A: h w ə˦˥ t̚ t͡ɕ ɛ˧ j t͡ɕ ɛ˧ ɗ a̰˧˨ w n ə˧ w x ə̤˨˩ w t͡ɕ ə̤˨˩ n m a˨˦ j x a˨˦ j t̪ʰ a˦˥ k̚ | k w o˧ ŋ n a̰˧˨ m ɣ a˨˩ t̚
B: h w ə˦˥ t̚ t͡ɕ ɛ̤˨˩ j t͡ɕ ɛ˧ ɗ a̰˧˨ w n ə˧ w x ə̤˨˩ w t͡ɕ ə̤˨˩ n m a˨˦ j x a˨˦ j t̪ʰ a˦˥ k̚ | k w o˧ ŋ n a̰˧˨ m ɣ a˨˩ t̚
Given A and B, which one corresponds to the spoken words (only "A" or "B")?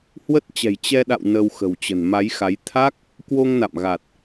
B